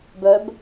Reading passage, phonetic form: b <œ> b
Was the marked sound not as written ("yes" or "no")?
no